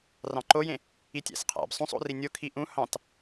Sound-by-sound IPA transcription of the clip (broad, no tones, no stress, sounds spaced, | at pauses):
r ɑ̃ ǃ o j ẽ | i tʲ æ̰ s qʰ æ̰ b sˤ ũ sˤ o̰ r i nʲ o kʰ i ʔ ũ h ɑ̃ t